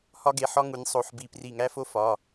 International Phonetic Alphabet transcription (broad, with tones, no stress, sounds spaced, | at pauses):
h ɒ˥ ɡ e˩˧˩ ħ ɒ˥ ŋ u˩˧ nʲ sˤ o˩˧˩ ħ b i˧˩ p r i˧˩ ŋ æ˥ f o˥ f ɒ˩˧˩